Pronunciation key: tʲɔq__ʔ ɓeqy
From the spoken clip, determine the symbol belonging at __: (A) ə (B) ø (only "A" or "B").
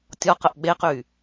A